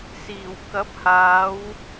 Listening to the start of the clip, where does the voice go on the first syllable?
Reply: low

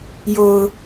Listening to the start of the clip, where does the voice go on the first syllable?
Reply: low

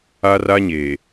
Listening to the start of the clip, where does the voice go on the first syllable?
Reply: high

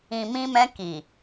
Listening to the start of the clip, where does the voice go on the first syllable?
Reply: low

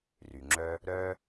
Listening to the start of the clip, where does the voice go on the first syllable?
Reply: low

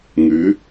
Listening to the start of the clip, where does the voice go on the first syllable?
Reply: rising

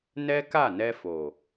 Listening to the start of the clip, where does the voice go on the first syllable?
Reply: high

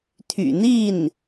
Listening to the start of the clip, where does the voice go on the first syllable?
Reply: low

